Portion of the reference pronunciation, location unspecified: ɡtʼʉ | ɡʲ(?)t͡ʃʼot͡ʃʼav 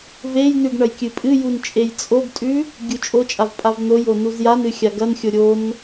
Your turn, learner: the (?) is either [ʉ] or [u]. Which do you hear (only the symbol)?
u